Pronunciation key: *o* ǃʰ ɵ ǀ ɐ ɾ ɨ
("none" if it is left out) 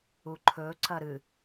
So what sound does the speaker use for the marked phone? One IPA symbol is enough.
u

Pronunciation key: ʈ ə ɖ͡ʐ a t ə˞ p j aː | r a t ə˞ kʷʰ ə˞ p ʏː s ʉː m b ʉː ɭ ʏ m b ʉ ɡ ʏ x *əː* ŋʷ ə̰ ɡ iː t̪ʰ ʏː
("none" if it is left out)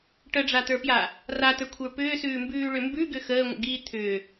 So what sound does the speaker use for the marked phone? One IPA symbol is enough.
əː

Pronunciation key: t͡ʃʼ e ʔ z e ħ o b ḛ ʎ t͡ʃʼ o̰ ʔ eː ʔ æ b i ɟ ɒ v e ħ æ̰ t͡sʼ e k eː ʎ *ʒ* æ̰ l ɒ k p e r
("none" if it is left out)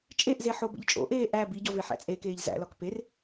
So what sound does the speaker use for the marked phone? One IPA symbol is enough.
z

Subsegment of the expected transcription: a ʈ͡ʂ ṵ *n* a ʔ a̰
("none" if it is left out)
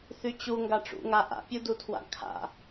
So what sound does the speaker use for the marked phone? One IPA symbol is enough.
ŋ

